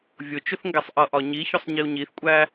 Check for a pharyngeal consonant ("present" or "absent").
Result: absent